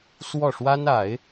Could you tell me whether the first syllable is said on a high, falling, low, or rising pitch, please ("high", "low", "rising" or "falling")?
falling